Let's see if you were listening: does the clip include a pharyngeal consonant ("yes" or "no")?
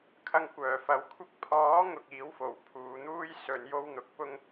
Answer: no